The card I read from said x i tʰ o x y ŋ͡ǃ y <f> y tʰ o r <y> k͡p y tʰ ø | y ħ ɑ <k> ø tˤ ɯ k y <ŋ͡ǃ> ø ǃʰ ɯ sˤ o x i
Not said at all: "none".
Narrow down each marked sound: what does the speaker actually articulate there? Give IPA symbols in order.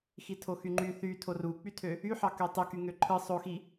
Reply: θ, u, k, ŋ

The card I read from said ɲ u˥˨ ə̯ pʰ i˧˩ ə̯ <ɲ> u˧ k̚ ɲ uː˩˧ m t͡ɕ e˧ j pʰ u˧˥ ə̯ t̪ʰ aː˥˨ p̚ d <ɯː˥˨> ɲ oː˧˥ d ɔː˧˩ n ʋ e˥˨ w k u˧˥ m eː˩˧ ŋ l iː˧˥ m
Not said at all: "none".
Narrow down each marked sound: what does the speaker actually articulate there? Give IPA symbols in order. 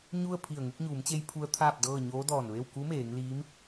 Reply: ŋ, ɤː˥˨

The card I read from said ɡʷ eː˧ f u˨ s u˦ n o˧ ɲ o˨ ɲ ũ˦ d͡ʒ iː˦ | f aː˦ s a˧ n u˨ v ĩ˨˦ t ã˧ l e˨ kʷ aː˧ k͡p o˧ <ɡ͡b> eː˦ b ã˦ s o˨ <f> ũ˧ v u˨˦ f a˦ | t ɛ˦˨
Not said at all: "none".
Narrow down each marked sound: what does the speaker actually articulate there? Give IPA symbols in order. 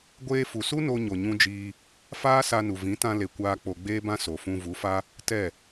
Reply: ɡ͡b, f

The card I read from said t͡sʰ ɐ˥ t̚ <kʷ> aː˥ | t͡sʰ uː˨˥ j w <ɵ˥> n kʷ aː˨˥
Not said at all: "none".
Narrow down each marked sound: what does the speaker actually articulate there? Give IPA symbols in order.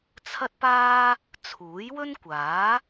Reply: p, ɵ˥

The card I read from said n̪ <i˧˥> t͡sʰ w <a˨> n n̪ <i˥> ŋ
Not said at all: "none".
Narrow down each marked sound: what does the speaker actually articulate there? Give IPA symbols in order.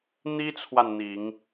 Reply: i˥, a˨, i˨˩˦

